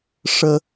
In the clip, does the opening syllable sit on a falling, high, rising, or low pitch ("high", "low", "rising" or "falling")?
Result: low